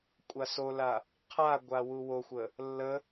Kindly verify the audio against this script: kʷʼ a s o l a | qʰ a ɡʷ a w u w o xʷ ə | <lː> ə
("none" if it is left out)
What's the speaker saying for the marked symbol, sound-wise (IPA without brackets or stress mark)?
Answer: lː